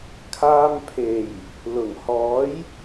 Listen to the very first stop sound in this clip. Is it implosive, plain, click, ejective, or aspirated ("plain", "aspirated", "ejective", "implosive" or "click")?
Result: aspirated